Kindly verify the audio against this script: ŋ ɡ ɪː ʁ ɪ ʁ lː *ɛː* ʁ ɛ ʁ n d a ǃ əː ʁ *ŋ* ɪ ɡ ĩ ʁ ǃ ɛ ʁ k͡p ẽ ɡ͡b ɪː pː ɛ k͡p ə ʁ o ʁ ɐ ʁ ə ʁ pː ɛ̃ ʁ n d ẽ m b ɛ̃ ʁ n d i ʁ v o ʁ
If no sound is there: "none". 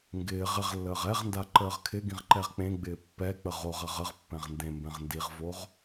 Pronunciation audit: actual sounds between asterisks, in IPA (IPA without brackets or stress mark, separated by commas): əː, kʰ